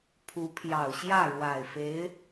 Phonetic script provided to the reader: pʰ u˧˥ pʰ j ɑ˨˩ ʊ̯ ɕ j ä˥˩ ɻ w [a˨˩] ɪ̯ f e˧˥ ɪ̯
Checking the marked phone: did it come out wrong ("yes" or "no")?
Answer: no